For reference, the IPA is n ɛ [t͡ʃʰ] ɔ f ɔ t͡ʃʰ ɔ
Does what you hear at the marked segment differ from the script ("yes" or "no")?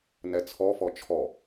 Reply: yes